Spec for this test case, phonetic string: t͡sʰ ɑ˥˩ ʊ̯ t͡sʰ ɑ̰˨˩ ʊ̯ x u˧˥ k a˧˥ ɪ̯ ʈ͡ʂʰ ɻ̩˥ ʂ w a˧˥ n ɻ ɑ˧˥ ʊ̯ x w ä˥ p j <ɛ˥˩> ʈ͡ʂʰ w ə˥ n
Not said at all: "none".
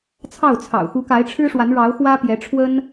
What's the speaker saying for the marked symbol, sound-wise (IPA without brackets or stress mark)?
ɛ˧˥